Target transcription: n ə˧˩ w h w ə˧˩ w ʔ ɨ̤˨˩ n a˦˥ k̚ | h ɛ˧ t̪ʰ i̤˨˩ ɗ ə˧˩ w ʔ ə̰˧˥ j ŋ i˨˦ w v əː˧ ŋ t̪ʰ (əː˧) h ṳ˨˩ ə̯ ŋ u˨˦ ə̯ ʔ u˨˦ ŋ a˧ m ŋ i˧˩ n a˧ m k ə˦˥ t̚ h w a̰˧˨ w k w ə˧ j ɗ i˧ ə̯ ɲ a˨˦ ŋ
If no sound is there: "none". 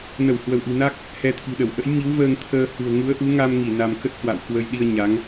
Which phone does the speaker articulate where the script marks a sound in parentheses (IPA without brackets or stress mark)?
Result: əː˧